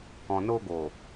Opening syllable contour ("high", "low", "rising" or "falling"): low